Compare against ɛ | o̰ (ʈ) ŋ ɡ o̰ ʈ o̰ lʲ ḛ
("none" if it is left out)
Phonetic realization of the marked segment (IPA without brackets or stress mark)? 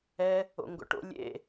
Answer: none